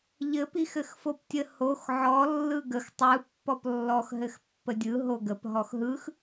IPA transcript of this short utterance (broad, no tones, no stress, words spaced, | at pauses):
ʎɘ pixɘxfoptʲə hox ʕɔ lːɯɡəx tˤɯ pːɔplːɔx ɦɘxpːədʲɯ ɦoɡəp ɦɔxɦɯx